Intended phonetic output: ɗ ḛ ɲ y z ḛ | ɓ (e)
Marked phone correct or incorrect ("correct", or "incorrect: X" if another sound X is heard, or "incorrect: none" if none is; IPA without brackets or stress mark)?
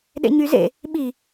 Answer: incorrect: i